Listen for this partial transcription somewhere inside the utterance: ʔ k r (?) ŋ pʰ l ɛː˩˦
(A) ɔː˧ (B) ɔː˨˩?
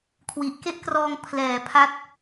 A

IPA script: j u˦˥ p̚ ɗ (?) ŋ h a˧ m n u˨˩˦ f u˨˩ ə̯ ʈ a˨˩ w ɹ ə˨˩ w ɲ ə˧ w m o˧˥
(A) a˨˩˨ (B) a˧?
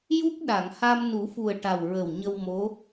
A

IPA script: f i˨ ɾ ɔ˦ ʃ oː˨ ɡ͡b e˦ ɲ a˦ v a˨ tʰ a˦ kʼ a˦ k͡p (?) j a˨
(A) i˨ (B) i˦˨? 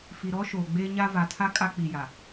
A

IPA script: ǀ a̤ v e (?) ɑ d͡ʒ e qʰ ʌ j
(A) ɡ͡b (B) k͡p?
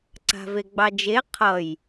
A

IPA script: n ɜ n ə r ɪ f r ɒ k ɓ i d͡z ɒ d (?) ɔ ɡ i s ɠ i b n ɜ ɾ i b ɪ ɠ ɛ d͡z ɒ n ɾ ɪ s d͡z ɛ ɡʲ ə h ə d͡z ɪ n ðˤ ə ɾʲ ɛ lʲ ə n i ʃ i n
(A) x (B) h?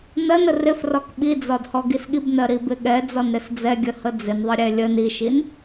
B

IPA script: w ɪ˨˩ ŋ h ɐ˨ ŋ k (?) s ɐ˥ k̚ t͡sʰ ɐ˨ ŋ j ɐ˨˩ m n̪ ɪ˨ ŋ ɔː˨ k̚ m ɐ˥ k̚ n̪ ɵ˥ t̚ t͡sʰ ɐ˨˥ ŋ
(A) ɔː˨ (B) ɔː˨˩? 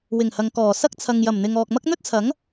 B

